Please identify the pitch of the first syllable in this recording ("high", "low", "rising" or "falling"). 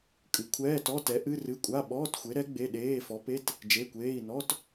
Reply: rising